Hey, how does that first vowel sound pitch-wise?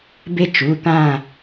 high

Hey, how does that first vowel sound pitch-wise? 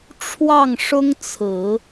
falling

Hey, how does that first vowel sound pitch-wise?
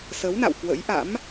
rising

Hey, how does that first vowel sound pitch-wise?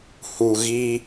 low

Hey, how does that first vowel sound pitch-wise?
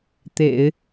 low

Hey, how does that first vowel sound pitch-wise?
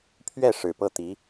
falling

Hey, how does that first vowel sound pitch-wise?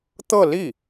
falling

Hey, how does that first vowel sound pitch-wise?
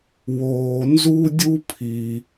low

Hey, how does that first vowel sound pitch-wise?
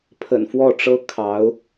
low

